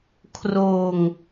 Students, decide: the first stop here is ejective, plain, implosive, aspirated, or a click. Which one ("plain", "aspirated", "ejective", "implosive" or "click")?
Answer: aspirated